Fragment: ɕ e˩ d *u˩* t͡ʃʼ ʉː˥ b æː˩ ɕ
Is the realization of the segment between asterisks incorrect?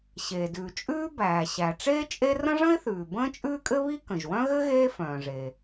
yes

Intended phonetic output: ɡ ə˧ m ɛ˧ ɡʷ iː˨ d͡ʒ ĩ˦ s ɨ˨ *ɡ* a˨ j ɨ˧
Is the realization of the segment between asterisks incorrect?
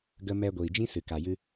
yes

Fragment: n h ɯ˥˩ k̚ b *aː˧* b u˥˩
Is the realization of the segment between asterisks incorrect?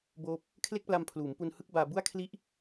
no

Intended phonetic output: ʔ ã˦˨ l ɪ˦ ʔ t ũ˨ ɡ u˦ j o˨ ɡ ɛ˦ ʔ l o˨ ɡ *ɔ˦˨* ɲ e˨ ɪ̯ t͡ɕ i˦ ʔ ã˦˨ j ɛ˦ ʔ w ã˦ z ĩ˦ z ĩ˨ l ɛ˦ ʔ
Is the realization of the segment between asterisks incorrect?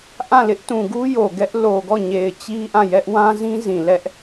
no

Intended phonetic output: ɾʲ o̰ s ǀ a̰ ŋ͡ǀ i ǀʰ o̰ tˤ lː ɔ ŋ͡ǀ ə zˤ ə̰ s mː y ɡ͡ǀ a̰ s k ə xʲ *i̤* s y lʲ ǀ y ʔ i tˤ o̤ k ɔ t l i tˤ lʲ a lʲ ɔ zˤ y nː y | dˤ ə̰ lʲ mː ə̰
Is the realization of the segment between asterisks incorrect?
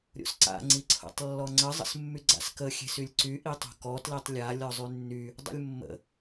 yes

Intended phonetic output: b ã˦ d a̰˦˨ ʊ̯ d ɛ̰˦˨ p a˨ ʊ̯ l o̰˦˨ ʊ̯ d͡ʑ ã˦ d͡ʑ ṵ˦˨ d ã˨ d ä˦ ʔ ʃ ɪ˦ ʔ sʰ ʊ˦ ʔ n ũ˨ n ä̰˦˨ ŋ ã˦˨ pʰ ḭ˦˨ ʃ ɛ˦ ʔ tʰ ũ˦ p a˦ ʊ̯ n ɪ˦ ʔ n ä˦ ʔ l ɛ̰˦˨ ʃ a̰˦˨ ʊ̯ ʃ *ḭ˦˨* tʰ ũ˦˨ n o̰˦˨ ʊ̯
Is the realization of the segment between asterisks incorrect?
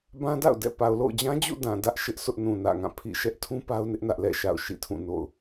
no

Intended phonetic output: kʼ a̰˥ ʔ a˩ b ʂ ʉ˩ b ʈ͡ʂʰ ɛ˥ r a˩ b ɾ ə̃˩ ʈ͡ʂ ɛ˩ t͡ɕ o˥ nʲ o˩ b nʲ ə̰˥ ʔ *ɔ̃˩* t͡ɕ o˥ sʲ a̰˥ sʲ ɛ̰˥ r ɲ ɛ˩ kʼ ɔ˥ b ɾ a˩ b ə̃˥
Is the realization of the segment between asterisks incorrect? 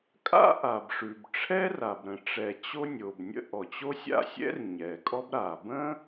yes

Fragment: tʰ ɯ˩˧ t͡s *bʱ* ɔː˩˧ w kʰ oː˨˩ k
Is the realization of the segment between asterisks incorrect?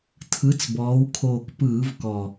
yes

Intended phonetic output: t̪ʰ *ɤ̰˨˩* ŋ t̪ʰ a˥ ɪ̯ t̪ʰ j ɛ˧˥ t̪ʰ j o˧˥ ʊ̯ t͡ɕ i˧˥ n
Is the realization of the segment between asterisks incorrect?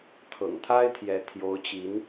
no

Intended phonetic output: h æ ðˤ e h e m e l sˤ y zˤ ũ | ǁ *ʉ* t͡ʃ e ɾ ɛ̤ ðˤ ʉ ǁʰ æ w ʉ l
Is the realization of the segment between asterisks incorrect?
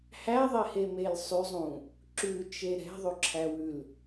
no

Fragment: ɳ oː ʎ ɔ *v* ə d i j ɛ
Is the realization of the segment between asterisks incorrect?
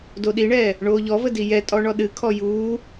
no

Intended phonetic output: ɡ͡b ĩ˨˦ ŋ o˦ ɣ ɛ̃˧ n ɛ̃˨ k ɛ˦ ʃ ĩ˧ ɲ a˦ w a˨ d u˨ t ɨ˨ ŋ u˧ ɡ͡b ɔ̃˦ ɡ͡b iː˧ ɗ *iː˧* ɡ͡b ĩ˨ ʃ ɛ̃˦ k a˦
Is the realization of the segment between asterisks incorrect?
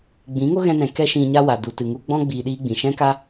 yes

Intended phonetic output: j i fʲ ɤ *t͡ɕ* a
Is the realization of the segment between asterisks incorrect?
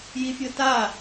yes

